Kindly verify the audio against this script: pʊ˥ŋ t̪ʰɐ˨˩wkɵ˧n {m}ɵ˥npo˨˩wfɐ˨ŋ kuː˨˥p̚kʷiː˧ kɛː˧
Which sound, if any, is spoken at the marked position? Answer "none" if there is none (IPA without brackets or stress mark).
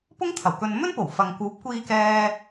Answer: m